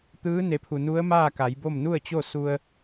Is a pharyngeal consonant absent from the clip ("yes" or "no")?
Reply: yes